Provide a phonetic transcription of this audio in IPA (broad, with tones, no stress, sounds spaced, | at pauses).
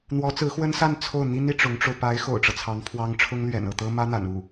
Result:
n̪ w ɔ˧˥ t͡s ɹ̩˧˥ x w ə˥ n s a˥˧ n t͡sʰ o˥˩ ʊ̯ n̪ i˥ n i˨ ʈ͡ʂ ʊ˧˥ ŋ ʈ͡ʂ o˧ ʊ̯ p a˧˥ ɪ̯ x o̰˨˩ ʊ̯ ʈ͡ʂ ɤ˦ t͡sʰ ɑ˧˥ ŋ pʰ w ɑ˥ ŋ ʈ͡ʂʰ ʊ˥ ŋ l ɥ ɛ̰˨˩ n ɤ˥˩ t̪ ɤ˥ m ä˥ n̪ a̰˨˩ n u˥˩